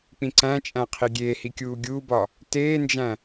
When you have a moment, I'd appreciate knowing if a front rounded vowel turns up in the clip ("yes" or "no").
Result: no